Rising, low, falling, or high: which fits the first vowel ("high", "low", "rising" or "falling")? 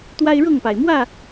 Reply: high